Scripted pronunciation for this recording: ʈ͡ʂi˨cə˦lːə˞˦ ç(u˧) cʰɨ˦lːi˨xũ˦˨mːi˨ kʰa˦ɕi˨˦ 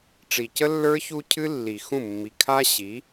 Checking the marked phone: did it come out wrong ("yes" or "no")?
no